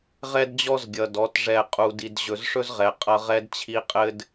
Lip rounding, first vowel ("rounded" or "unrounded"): unrounded